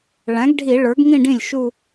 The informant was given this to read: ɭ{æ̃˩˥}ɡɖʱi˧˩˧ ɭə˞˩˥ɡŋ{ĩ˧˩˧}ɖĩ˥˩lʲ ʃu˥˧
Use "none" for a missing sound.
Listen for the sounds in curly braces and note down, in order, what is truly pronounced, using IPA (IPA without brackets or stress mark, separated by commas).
æ̃˩˥, ĩ˥˧